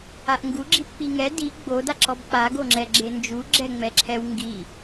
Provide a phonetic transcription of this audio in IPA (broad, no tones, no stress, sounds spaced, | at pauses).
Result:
a ʔ ŋ ɡ u ɡ͡ǁ i p k͡p i ŋ ɛ d i ɡ͡b o d a ǁ ɔ b k͡p a ɡ o ŋ͡ǁ ɛ ɡ͡ǁ e n d͡ʒ u ɡ͡ǁ ɛ ŋ͡m ɛ ǁʰ ɛ w ŋ ɡ i